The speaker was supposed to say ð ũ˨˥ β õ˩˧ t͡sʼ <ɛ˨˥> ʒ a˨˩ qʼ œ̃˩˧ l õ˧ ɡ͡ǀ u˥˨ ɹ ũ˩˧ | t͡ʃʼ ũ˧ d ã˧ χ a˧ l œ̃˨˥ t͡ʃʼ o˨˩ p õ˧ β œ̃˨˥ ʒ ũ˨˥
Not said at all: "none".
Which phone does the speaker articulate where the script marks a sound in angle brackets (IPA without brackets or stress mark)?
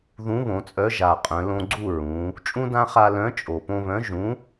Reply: œ˨˥